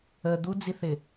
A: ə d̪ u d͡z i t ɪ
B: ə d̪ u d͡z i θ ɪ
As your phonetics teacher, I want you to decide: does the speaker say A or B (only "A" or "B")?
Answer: B